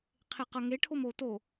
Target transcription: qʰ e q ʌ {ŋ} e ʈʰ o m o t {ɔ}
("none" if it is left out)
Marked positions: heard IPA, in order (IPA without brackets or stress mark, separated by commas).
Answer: ŋ, o